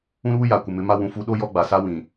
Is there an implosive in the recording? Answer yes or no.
yes